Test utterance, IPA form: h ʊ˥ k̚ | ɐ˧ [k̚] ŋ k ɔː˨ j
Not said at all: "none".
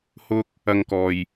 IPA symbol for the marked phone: none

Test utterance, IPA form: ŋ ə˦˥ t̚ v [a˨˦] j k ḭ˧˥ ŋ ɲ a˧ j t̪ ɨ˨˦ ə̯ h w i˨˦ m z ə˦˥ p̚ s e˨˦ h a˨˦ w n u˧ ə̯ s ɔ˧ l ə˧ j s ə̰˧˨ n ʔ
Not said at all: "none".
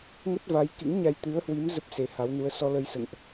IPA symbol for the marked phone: a˨˦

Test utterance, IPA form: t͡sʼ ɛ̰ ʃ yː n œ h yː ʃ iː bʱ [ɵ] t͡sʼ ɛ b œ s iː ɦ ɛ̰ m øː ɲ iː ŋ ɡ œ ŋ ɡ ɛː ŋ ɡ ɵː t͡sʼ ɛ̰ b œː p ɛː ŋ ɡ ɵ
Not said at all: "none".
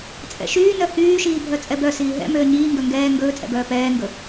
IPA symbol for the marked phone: œ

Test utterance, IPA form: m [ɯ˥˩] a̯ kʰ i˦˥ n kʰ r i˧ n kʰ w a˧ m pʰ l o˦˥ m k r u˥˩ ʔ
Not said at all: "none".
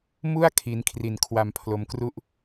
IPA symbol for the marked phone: u˥˩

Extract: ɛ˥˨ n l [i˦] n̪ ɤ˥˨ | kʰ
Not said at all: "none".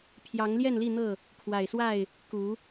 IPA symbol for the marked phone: i˥˨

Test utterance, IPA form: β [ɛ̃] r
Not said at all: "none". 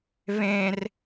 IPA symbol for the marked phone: ẽ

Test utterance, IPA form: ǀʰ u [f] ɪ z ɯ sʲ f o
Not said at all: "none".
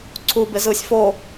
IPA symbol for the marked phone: b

